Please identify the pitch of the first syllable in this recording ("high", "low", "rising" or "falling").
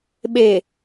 low